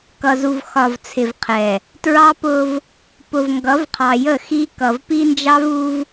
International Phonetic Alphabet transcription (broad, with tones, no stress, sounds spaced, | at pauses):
k ʌ˨ z u˨ v x ɒ˨ v t͡sʰ ɪ˨ v qʰ ɛ˨ | t ɹ ɑ˦ p ʊ˦ v | p ʊ˨ v ŋ ɡ ʌ˨˦ v qʰ ɑ˨ j ə˦˨ x i˦ k ʌ˨ v p i˦ n d͡ʒ ɑ˦ v u˦ v